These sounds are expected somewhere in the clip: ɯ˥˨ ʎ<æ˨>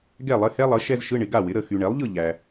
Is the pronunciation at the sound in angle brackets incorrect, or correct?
correct